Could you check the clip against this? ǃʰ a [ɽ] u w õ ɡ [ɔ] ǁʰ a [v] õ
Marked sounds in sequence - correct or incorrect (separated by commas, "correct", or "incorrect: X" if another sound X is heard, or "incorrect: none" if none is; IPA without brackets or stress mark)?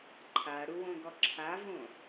correct, correct, correct